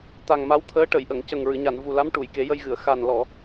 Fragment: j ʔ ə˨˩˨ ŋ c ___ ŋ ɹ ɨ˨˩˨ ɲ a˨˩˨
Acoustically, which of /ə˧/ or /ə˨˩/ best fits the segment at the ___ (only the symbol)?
ə˨˩